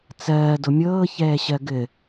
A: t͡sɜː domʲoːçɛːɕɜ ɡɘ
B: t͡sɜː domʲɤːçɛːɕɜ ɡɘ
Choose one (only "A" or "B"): B